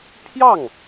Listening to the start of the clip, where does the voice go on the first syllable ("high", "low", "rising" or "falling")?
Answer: falling